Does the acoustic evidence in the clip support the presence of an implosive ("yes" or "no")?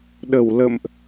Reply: yes